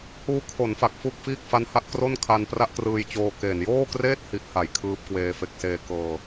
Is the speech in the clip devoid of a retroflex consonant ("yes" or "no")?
yes